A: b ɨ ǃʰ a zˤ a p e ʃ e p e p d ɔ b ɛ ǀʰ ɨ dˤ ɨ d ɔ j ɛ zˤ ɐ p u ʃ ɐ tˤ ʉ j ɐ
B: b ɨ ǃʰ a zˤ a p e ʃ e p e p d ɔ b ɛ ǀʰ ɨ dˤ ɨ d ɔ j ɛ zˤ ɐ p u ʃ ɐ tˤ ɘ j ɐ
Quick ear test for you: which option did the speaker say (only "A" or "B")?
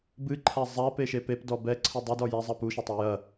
B